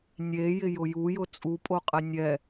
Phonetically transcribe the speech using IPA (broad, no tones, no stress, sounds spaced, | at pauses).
nʲ e j ɪ j ʊ j u j ʊ t͡sʼ u pʼ o qʼ ɛ nʲ ɛ